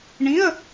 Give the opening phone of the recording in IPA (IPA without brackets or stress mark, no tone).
ɳ